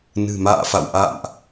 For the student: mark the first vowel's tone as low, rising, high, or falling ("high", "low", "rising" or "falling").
low